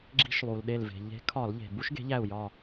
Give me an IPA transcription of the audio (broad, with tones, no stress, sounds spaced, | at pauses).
ɡ͡ǁ i̤˦ ʃ lˠ u˩ l ɗ e˧˩ l v e̤˩ ʎ e̤˨˦ kʰ ɒ˧˩˧ l ʎ e̤˩ b u˦ ʃ ɡ e̤˨˦ ʎ æ˧˩ u̯ j ɒ˧˩